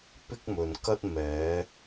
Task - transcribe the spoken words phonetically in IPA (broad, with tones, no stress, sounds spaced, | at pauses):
p ɪ˥ k̚ m ɵ˨ n k ɐ˥ t̚ m ɛː˨˧